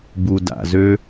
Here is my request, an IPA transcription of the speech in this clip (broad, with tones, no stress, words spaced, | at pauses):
bu˨ da̰˨zø˦